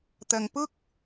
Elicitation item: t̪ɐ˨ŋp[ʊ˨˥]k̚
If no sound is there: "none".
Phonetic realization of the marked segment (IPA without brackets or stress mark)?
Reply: ʊ˥